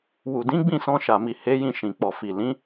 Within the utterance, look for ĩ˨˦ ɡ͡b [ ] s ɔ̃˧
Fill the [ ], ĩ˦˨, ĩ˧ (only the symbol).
ĩ˦˨